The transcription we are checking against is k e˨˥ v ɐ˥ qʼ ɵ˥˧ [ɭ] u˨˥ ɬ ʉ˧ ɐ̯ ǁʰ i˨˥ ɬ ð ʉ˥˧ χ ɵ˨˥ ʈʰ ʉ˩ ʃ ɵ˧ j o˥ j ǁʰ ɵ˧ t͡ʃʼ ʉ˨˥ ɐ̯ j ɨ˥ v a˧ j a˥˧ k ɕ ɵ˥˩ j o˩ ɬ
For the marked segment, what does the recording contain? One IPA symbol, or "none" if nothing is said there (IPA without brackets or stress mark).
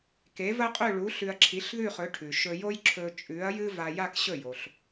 ɭ